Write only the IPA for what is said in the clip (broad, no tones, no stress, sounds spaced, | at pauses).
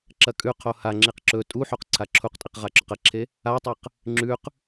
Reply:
ǁ ɐ kʼ ʉ qʰ o h a ŋ͡ǁ i q ǁ ɵ tʼ u ħ o q ǀʰ a ǁʰ u q tʼ i q ʁ a ǁ ɵ q ɐ ǁʰ e | a tˤ ɐ q | ŋ͡ǁ ʉ q